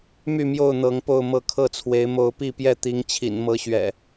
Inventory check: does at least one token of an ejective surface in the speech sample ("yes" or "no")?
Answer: no